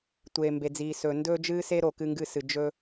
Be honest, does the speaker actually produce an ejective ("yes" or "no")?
no